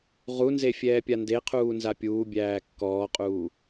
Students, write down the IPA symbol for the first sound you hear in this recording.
ʁ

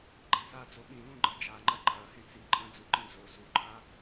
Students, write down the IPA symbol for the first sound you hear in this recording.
ɡ͡ǃ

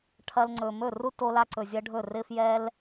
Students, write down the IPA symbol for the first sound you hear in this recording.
ʈʰ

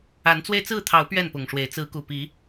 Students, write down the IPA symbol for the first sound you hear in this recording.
a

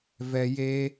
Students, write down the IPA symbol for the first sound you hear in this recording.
v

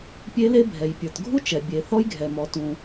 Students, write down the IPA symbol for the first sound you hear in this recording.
pʲ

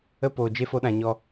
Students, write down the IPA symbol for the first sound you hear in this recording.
ə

